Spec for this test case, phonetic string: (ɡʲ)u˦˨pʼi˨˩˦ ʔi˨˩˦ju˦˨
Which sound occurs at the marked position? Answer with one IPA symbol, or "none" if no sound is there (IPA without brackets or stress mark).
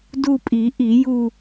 d